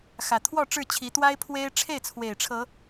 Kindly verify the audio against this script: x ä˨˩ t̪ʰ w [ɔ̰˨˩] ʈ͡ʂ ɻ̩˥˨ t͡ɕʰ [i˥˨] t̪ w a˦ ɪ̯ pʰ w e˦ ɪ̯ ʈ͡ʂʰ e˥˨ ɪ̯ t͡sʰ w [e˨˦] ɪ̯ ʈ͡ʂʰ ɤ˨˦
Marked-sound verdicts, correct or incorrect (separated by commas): incorrect, incorrect, incorrect